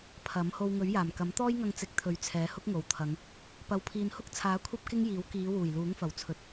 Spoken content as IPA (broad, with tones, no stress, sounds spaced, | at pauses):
pʰ ɐ˨˥ m h o˧ w ŋ ɵ˨˥ ɥ j aː˨˩ m k ɐ˨˥ m t̪ ɔː˥ j ŋ ɐ˧ ŋ t͡s ɪ˨˥ k̚ t̪ʰ ɵ˨˧ ɥ t͡sʰ ɛː˨˧ h ʊ˥ k̚ ŋ o˨ w t̪ʰ ɐ˨˧ ŋ | p ɐ˨ w pʰ iː˨ n h ʊ˥ k̚ t͡sʰ aː˨˥ kʷʰ ɐ˥ p̚ k ɪ˥ ŋ j iː˨˥ w k iː˨˧ w uː˨˩ j l uː˨˥ ŋ f ɐ˨˩ w t͡sʰ ɵ˨ t̚